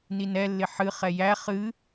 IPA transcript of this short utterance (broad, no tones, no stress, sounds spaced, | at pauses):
n i n ɛ lː ɪ ħ ɨ χ ɛ j æ χ ɨ